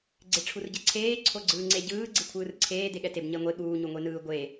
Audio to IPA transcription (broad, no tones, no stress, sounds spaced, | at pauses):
ɡ͡ǀ e ʈ͡ʂʰ u r ɟ ɛ ǀʰ eː ǀʰ o ɡ͡ǀ ɯː ŋ͡ǀ e ɟ ɯː ɡ͡ǀ i kʷʰ ɯː r ǀʰ eː d e ɠ ɛ t e b ɲ ɛ ŋʷ e ɠ uː ɲ u ŋʷ e n ɯː ɡʷ e